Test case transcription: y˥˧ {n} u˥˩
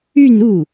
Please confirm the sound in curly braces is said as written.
yes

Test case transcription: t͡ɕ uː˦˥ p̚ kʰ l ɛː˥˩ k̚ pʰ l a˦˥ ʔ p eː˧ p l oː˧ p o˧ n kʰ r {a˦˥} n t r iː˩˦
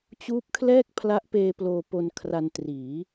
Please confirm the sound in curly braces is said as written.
no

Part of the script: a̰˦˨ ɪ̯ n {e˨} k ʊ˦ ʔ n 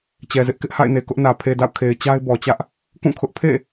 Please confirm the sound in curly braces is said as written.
yes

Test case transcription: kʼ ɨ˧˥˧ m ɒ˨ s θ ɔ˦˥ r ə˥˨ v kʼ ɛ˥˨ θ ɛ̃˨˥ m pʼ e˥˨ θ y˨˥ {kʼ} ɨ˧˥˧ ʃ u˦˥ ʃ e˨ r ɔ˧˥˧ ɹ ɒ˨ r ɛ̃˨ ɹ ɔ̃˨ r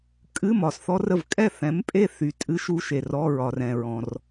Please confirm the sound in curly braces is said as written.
no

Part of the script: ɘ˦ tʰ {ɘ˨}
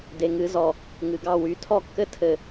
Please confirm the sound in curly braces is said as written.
yes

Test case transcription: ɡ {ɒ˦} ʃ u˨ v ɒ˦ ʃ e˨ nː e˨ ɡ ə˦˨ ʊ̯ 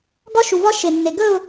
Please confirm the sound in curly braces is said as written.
yes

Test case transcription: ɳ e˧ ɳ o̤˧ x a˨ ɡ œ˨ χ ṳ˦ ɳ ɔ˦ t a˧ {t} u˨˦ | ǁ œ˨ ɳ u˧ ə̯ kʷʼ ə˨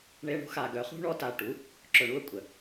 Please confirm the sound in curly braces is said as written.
no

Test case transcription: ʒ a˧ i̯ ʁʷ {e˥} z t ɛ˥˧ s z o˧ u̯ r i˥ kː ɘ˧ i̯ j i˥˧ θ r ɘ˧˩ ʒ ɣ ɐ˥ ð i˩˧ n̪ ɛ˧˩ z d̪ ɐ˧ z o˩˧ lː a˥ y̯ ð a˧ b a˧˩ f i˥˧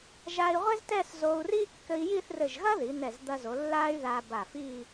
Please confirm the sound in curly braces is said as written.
yes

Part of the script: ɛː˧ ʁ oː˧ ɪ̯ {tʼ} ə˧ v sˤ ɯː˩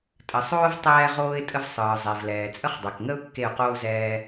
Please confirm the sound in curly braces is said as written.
yes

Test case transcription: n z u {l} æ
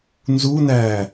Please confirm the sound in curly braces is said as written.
no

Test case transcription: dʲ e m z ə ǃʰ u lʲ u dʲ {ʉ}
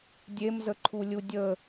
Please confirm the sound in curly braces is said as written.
no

